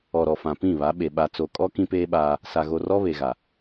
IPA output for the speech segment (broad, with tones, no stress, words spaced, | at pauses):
ɔ˨ɾɔ˨fã˨ pĩ˦˨βa˨˦ɓe˨ ɓa˨t͡so˨kʼɔ˦ kĩ˦peː˦ɓaː˦ | sa˨ɣo˨rɔ˦ βe˨ɣa˨